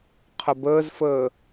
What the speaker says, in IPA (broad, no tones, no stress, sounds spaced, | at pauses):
qʰ ə b əː z f əː